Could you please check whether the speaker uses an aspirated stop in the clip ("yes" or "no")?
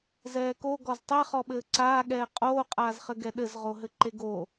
no